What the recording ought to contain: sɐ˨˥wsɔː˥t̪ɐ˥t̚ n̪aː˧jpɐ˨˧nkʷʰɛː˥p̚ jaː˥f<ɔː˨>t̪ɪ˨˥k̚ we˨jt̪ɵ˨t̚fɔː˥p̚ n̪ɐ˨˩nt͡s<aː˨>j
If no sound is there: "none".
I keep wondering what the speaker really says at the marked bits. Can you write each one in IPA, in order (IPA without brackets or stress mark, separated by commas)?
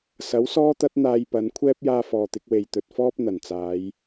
ɔː˨, aː˨˧